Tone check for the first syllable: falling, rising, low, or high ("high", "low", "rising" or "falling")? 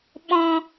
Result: low